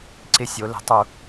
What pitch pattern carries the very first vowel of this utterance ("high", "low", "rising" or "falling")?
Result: falling